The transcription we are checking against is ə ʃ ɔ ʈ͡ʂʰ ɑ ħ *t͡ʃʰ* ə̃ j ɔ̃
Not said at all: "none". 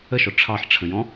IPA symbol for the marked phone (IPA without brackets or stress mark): ʈ͡ʂʰ